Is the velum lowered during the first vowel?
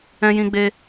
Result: yes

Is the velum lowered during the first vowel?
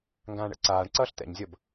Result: yes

